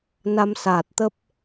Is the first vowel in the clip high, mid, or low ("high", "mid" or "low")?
low